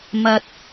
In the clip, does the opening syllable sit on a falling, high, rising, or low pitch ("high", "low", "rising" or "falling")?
low